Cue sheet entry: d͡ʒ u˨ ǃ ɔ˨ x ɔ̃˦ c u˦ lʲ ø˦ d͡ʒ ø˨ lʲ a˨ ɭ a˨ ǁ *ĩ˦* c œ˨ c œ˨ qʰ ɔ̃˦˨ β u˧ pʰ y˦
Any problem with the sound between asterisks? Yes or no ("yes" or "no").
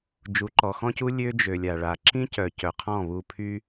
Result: no